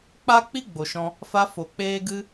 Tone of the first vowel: high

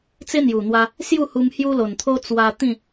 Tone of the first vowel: high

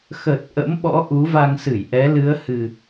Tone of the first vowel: low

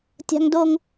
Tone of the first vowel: high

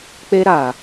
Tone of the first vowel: high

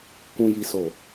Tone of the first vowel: low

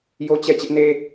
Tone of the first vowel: high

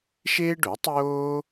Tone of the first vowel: high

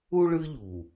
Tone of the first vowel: high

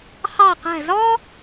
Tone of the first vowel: falling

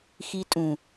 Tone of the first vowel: high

